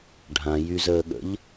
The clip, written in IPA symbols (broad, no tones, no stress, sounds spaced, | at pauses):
ɖʱ ã j y z əː ɠ ə̰ ʎ